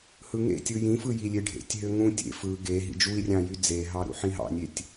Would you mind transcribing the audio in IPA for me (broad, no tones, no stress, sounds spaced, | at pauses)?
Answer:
h ɯ ŋ ḛ tʲ ɯ j ĩ f ɯ j i lʲ e ɖʱ ḛ tʲ ɦ ø ŋ ũ tʲ ḛ f ɯ ɡ e ɦ ḭ d͡ʒ u i̯ rʲ ɑ̃ j y d͡z e ɦ ɑ ɾ ṵ ħ ĩ ɦ ɑ̰ nʲ e tʲ